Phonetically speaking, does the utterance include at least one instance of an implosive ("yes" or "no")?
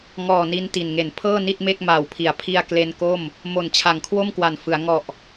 no